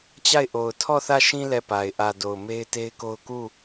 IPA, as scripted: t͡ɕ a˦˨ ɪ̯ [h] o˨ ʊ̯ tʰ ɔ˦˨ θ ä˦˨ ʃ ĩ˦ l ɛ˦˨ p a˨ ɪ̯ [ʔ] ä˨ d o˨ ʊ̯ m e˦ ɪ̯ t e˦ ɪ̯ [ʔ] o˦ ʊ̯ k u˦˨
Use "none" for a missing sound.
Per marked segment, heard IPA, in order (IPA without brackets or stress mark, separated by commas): ʔ, ʔ, k